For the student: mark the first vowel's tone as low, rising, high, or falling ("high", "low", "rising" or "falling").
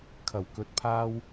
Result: low